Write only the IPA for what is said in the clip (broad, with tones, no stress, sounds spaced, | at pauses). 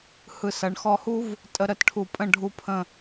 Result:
h ɯ˧˩ s ɐ˩˧ ɳ x ɔ˧ h u˥ v | tʼ ə˧ ɾ ə˩˧ t ʈʰ u˧˩ pʼ ə̃˥˧ ɖʱ u˥˧ pʰ ə̃˥˧